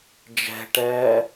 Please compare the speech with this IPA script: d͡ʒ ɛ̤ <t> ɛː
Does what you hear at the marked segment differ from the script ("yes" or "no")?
yes